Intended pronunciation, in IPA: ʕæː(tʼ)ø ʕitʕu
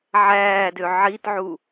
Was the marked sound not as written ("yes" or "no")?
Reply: yes